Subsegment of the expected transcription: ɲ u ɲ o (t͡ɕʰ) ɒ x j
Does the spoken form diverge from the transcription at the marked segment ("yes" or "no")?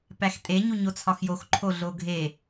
yes